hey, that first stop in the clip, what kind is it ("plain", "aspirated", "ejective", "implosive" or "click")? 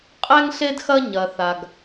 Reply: ejective